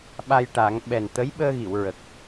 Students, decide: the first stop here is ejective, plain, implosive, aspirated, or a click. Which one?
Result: implosive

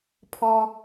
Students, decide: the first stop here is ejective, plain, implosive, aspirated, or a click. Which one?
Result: aspirated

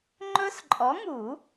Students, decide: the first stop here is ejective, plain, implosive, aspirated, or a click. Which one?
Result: click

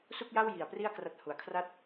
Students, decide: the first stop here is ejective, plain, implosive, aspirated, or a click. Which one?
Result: plain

